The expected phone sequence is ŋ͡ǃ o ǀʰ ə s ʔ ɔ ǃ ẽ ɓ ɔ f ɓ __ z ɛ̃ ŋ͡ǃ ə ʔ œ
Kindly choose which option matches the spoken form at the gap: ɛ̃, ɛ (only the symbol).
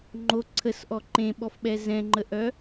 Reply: ɛ